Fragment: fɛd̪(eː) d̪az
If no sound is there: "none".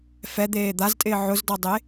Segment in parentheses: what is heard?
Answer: eː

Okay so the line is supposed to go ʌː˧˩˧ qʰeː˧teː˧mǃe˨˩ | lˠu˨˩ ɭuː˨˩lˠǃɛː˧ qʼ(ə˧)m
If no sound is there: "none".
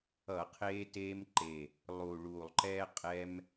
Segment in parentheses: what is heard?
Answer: ɛ˧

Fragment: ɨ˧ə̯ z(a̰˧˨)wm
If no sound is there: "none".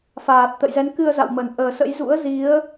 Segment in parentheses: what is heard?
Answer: a̰˧˨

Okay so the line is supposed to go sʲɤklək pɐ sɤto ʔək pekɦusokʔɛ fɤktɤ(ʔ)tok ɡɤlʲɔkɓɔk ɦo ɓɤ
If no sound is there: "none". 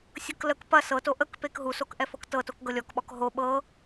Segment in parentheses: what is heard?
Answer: none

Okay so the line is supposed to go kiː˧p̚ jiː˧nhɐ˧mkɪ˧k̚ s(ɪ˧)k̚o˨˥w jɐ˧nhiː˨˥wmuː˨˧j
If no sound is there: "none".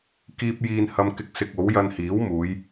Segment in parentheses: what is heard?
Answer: ɪ˧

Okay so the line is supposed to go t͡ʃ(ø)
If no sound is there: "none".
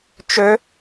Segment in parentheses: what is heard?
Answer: ø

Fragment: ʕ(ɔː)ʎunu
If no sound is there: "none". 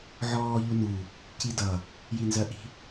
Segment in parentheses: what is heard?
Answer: ɔː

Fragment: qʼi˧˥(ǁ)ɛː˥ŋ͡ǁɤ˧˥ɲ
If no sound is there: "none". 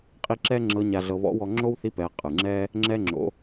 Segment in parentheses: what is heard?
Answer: ǁ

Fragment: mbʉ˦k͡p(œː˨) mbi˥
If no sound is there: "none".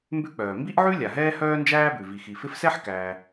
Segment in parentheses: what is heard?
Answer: œː˩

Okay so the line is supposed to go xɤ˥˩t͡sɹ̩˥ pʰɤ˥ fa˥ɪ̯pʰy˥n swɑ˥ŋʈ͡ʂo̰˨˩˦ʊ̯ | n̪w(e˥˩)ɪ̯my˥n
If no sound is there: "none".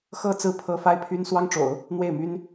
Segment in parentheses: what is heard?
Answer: e˥˩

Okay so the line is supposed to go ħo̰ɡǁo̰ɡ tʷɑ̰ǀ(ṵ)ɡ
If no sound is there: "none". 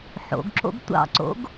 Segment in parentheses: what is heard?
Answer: o̰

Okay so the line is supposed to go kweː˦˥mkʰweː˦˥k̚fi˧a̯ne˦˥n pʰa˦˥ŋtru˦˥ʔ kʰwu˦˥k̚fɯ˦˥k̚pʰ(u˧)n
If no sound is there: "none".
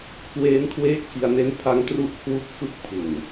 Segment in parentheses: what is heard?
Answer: u˨˩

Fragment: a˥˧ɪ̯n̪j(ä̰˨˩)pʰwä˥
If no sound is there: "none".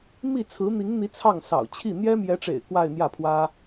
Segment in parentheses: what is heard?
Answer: ä˥˩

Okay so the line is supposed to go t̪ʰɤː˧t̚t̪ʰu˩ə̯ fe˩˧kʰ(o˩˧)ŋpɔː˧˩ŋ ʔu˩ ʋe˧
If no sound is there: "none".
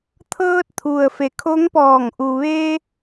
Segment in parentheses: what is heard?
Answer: o˧˥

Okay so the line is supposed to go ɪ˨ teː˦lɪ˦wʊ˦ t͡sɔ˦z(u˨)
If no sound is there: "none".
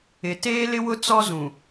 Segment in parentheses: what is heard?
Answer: ũ˨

